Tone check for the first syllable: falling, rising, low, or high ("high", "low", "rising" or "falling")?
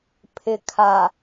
low